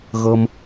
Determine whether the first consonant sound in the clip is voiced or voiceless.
voiced